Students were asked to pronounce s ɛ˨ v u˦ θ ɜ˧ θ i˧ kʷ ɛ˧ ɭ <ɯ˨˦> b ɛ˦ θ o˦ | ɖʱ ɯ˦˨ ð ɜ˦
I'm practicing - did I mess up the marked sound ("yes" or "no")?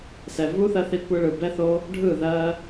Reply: yes